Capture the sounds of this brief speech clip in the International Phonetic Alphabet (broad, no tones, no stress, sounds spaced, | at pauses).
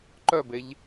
ǃ œ b e ʎ